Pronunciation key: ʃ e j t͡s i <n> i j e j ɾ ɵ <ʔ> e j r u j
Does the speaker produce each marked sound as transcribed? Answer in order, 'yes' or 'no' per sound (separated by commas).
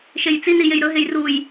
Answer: yes, no